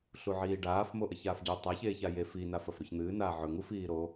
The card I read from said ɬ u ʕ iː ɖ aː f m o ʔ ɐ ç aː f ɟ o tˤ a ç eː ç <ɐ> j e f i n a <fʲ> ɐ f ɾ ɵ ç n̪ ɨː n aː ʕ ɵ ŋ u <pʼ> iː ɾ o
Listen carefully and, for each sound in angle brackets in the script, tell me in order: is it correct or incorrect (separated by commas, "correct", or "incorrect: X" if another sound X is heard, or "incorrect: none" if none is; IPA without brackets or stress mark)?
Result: incorrect: a, incorrect: f, incorrect: f